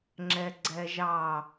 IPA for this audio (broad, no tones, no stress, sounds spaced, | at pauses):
ŋ͡ǁ ɛ ɡ͡ǀ ɛ ʒ ɑ